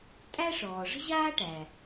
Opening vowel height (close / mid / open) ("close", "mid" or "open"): open